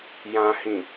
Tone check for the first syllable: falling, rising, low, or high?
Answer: low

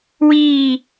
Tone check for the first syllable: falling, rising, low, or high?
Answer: falling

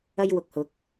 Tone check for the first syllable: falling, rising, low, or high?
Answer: high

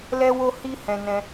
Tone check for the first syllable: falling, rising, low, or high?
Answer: high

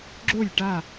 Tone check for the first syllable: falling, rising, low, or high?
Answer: falling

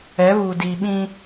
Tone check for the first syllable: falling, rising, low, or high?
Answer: rising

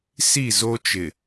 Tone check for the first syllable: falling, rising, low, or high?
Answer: falling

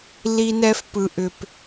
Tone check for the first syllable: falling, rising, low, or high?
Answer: high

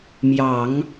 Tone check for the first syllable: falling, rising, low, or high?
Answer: low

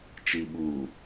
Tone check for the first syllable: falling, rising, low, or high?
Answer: low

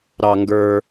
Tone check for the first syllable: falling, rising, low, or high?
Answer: low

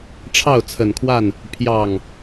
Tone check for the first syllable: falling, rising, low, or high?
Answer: falling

